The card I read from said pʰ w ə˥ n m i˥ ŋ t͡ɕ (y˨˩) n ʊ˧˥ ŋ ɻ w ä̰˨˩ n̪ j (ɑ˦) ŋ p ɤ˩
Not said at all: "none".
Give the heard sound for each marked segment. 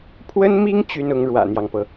y˥, ɑ˦

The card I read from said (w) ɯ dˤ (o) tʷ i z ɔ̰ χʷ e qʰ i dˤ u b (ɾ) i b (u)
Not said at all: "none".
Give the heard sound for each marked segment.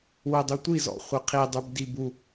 w, u, d, u

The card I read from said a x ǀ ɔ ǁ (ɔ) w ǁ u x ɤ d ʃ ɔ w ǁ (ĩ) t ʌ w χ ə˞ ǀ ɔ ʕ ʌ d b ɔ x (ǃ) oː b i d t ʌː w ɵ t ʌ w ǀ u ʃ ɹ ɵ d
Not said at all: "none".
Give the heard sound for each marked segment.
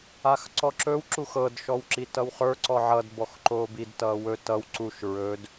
ɵ, i, ǃ

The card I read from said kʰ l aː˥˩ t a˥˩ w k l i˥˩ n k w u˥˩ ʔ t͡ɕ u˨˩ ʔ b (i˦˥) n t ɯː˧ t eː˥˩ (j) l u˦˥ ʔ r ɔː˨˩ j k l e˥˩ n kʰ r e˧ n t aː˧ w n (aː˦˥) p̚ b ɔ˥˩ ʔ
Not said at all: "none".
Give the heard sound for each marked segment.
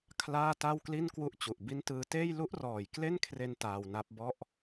i˦˥, j, a˦˥

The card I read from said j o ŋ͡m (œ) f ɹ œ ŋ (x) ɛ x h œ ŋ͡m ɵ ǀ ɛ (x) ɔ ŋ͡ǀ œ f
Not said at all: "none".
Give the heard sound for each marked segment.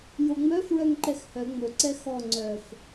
œ, ǃ, x

